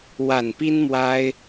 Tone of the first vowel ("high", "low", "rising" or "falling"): low